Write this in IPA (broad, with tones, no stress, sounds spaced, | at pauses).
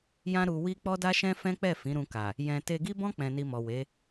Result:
j ã˦ ɾ u˧ w i˦ k͡p ɔ˦ d a˦ ʃ ɛ̃˦ f ɛ̃˦ k͡p ɛ˦˨ f ĩ˨˦ ɾ ũ˧ k a˨ | j ɛ̃˧ t e˧ ɡ i˦ b ɔ̃˦ k͡p ɛ̃˧ n i˧ m ɔ˨ w e˨˦